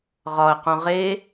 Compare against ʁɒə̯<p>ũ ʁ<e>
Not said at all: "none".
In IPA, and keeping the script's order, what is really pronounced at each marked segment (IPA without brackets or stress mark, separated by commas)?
q, e